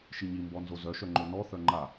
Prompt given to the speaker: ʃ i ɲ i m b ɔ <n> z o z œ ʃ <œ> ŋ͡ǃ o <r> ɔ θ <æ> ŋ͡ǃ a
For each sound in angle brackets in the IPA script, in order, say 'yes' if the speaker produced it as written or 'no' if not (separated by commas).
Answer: yes, yes, no, no